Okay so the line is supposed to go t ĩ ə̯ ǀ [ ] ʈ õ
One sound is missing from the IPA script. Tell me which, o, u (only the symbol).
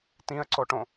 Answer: o